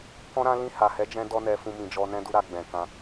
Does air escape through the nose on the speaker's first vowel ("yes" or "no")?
yes